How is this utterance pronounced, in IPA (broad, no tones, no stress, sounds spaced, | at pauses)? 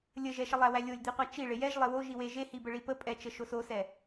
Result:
lʲ ə ʒ ɛ ʃ ə lˠ æ w æ lʲ o lʲ d̪ i qʷ æ t͡ʃ i ɭ e j ɛ ʒ lˠ e w o ʒ i w e ʒ e h i b ə ɭ i p ə pʼ ɛ t͡ʃ ə ʃ o s o s ɛ